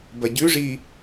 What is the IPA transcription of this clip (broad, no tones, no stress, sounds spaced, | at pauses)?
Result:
b ɐ ɟ ʉ ʐ i